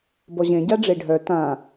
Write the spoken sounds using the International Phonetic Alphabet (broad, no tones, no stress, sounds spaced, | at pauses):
b ɔ ʑ ẽ ɟ a ɖ͡ʐ e ɖʱ œ t ã